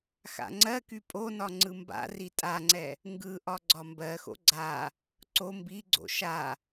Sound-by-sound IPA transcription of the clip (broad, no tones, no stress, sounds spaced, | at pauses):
x a̰ ŋ͡ǀ ɜ k y pʼ o n ɒ ŋ͡ǀ ɯ m b a̰ r i tʼ a ŋ͡ǀ ɛ | ŋ ɡ ɯ ʔ ɒ ɡ͡ǀ ɒ m b ɜ x o̰ ɡ͡ǀ a | ǀ o m b i ɡ͡ǀ o̰ ʃ a